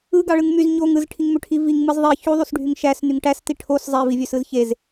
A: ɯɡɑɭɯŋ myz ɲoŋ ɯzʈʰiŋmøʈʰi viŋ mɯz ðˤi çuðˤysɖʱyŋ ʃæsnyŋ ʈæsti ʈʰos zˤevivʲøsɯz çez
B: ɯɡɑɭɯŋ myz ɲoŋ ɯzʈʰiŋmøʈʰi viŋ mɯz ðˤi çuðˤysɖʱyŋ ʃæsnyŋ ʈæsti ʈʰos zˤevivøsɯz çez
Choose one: A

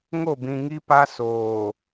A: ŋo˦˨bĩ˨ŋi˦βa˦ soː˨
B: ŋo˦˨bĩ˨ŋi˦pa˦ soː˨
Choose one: B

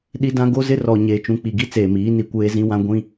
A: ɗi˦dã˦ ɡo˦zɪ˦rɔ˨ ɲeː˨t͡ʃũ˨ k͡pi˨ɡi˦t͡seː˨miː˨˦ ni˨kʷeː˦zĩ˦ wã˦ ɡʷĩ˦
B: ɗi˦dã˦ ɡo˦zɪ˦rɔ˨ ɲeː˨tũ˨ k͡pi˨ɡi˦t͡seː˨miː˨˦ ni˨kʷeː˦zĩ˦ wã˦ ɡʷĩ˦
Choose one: A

